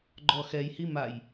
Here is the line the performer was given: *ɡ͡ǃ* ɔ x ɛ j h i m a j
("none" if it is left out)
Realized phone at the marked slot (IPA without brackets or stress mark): ɡ͡ǃ